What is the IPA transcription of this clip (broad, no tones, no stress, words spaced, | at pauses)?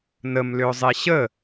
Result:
nəm lʏʊ̯zˤeɕə